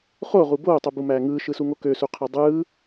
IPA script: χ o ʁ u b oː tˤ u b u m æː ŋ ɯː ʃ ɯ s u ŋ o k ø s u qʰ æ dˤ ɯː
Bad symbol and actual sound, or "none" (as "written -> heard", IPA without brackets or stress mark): none